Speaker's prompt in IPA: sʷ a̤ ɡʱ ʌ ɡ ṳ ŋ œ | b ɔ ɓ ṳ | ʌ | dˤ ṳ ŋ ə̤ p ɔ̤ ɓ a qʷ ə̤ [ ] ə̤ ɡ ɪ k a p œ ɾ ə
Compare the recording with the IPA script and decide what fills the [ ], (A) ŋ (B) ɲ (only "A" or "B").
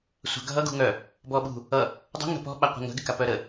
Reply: A